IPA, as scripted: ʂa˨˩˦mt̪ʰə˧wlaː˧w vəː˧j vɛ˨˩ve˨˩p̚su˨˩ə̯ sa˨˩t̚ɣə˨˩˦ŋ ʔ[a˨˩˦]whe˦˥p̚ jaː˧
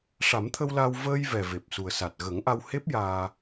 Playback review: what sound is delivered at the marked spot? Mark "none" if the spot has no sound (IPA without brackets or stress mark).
a˧